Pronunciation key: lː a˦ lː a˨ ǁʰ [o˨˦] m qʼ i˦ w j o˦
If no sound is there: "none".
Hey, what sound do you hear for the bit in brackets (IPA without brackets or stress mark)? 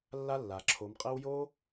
o˨˦